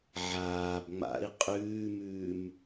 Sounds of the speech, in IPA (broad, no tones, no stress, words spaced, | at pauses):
ʕaːb ŋ͡ma̰i̯ qʼʉːmʉːm